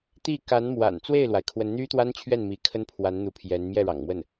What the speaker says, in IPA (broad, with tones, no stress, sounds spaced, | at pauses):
t̪ i˥˩ k a˧˥ n m w a̰˨˩ n t͡s w e˥˩ ɪ̯ l w a˩ ɪ̯ kʰ w ə˧˥ n n̪ y˥ t̪ w a˥ n t͡ɕʰ ɥ ɛ˥˩ n m i˧˥ kʰ ə˥ n pʰ w a˧˥ n n̪ u˧˥ pʰ j ɛ˧˥ n m j ɛ˥˩ ɻ ɑ̰˨˩ ŋ m w ə˥˩ n